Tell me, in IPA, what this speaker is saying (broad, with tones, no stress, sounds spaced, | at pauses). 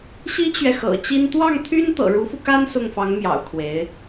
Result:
ɕ i˥ t͡ɕ ɥ ɛ˨ x ɤ̰˨˩ t͡ɕ i˥ n t̪ w ɑ˥˩ ŋ t̪ʰ y˥ n t̪ ɤ̰˨˩ ɻ u˧˥ f u˧ k a˥ n s ʊ˥˩ ŋ f ɑ˧˥ ŋ m j ɑ̰˨˩ ʊ̯ kʰ w e˧˥ ɪ̯